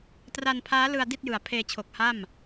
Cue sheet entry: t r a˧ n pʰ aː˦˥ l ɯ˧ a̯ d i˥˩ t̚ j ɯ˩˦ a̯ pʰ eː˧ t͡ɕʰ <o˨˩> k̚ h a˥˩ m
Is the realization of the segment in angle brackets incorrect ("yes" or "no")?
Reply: no